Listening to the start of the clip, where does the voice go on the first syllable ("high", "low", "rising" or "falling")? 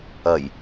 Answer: low